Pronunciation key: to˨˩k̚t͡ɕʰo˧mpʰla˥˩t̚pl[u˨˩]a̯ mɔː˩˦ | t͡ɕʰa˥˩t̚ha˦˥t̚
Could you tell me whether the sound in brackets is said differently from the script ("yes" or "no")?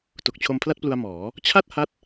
yes